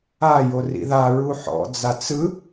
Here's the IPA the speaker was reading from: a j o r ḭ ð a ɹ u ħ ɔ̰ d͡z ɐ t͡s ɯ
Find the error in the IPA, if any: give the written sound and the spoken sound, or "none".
ɐ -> a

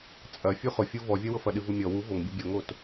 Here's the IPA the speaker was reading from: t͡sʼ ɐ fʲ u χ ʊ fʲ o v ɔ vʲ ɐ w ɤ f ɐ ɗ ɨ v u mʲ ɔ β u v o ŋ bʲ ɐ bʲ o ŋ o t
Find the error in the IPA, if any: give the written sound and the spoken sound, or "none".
β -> w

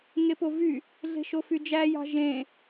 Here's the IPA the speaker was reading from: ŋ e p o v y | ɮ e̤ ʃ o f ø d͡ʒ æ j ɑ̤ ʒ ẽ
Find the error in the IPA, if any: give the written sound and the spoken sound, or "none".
ø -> y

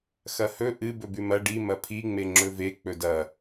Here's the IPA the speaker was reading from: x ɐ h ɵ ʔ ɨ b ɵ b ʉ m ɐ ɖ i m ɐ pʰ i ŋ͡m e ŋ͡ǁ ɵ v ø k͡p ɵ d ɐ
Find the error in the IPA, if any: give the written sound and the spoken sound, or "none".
ø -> e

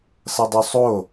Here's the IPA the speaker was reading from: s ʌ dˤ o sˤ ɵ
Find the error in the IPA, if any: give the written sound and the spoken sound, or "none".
ɵ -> o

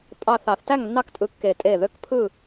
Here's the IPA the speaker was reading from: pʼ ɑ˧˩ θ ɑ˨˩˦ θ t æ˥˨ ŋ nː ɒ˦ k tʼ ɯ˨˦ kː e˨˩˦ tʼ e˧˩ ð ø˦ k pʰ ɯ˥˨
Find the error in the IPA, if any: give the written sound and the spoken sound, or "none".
ɒ˦ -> ɑ˦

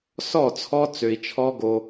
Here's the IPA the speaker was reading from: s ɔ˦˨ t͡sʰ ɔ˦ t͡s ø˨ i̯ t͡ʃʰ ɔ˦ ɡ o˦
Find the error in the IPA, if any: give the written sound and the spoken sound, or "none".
none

